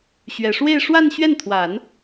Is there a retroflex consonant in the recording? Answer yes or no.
yes